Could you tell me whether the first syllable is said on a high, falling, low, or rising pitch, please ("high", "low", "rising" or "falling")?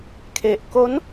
low